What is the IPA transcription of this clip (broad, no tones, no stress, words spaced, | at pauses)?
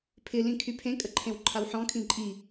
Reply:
pʰɪ lĩkʰypʰẽ kʼəǃʰẽwǃʰawħɔ̃ kʰĩǃʼi